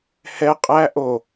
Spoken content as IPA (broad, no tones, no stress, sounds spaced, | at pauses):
h ɛ qʼ æ ʔ o